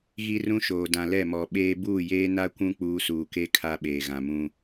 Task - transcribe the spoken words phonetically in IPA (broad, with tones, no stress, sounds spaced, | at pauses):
ɣ i˦ r ũ˦ ʃ oː˨ d ã˨ l ɛ˦˨ m ɔ˨ ɓ eː˦ b uː˦˨ j eː˦ n a˦ kʷ ũ˦ k͡p uː˦ s uː˨ k e˦ kʰ a˦ ɓ eː˨ ɣ ã˨ m ũ˦